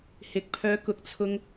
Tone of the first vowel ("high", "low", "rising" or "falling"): low